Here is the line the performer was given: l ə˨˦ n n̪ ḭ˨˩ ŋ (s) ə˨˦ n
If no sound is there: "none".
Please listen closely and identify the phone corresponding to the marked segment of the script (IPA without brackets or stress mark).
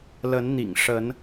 ʂ